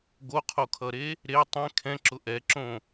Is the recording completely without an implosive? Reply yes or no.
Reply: yes